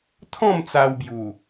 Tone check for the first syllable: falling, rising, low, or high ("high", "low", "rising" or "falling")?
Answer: falling